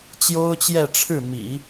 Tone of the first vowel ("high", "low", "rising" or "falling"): high